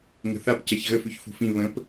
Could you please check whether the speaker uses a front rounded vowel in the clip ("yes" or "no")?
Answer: yes